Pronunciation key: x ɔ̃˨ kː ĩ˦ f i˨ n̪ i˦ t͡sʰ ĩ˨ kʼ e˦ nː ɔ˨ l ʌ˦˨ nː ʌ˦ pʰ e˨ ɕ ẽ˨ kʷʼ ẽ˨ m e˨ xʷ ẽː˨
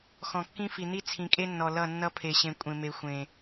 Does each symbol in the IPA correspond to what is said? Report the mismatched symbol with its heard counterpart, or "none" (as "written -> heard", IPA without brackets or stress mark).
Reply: ẽː˨ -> ẽ˨